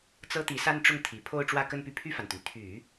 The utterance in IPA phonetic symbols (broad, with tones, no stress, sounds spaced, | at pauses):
t͡s ɤ˥ t̪ i˧˥ s a˥ n ʈ͡ʂ ʊ˥˩ ŋ t̪ʰ i˨˩ pʰ o˥˧ ʊ̯ ʈ͡ʂ w ä˥˧ k ə˥˧ n p y˥˧ pʰ y˥˩ f a˩ n t̪ y˩ n t̪ʰ y˨˩˦